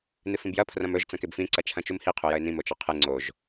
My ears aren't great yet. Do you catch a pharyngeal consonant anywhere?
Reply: no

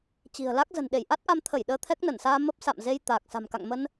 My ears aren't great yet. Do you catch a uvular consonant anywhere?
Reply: no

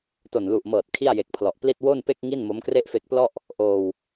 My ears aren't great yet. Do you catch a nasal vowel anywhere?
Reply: no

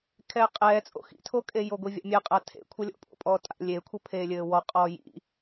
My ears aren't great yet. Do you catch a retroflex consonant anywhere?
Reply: no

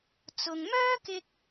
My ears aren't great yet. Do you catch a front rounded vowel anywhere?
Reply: yes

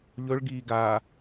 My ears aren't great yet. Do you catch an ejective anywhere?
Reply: no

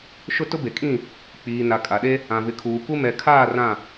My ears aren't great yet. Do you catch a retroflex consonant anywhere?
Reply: no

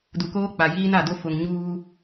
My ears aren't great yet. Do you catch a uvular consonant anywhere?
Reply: no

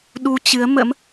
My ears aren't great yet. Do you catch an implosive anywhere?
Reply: yes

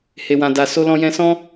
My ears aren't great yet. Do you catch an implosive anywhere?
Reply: no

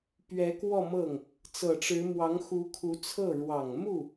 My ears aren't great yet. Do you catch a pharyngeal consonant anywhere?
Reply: no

